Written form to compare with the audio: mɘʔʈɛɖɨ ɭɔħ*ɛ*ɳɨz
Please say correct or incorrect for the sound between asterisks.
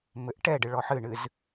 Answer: incorrect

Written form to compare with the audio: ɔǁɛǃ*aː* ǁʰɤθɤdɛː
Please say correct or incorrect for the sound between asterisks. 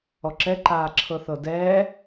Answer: correct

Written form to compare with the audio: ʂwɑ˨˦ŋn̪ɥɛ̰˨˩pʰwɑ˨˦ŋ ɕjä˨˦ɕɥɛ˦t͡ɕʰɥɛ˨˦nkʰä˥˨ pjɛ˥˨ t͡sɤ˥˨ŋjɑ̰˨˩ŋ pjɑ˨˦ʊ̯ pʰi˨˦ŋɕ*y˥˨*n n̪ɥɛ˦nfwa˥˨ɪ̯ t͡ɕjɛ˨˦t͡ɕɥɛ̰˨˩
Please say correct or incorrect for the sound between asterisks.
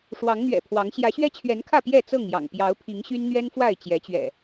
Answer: incorrect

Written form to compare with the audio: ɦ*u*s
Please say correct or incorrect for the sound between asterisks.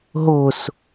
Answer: incorrect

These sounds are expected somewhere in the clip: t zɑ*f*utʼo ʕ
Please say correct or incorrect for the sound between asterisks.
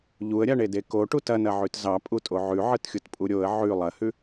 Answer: incorrect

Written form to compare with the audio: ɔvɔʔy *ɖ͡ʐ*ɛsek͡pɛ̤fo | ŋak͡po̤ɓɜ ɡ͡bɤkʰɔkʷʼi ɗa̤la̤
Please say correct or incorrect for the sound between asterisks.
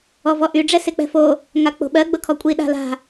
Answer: correct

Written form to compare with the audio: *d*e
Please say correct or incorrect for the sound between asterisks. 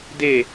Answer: correct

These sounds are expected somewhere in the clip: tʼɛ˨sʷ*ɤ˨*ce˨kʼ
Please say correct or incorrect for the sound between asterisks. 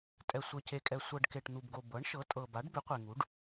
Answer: correct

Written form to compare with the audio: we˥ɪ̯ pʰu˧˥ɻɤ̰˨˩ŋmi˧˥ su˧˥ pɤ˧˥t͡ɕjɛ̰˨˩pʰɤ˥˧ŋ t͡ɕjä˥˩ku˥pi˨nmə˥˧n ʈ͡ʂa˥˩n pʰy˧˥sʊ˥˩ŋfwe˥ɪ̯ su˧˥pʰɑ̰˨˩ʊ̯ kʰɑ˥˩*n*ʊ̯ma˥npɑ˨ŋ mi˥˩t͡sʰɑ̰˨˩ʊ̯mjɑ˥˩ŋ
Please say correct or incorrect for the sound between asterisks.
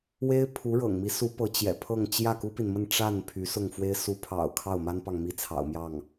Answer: incorrect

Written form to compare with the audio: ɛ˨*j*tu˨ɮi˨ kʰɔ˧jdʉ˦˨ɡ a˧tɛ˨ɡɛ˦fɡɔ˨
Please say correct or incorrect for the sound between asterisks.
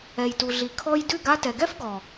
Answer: correct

